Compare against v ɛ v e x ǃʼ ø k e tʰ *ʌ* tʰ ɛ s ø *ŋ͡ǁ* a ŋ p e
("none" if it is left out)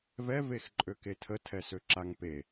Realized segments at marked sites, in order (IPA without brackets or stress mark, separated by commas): ə, ǁ